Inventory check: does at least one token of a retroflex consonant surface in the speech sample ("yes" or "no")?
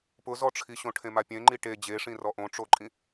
yes